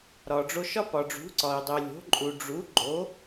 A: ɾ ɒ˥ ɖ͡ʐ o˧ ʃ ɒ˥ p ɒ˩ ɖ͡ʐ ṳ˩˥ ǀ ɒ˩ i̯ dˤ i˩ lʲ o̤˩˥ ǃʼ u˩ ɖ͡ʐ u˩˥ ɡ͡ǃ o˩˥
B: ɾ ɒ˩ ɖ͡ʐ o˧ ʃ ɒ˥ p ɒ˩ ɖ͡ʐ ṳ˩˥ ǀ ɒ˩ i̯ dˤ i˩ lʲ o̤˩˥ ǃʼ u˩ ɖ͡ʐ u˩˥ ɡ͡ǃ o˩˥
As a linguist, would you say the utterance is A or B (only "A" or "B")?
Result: B